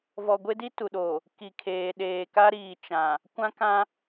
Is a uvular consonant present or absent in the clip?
absent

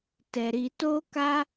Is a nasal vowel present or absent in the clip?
absent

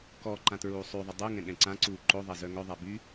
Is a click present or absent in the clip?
present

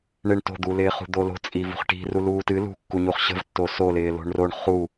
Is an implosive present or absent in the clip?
absent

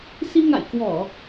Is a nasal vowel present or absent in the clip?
absent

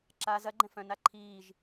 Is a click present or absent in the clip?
present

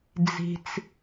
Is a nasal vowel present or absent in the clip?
absent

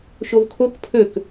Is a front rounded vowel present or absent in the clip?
present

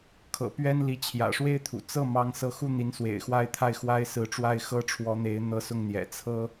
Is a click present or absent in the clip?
absent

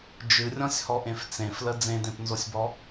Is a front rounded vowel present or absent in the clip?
absent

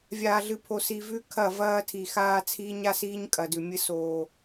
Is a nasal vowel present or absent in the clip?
absent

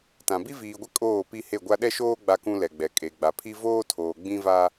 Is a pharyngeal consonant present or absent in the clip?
absent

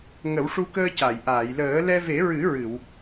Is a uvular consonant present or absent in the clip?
absent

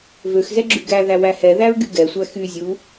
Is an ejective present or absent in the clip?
absent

